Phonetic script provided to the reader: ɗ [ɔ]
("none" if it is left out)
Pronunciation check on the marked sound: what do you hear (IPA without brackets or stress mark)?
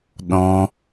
ɔ̃